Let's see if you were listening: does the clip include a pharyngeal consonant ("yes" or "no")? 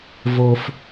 no